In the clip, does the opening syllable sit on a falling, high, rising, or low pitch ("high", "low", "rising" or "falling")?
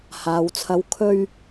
low